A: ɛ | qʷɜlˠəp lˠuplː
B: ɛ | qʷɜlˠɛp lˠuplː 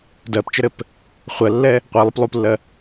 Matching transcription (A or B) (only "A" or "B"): A